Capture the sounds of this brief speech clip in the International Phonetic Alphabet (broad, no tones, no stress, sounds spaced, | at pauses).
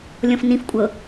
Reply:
lʲ ɔ̃ f n ĩ f kʷʼ ɤ